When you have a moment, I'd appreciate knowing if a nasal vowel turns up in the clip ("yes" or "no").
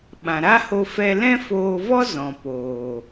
yes